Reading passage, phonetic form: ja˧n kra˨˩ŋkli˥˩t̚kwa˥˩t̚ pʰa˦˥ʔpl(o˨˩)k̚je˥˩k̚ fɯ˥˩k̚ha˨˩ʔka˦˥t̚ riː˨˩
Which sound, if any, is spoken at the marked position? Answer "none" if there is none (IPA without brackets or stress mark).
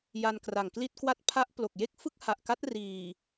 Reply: o˨˩